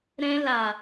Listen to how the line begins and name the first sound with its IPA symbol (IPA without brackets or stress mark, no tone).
ɾ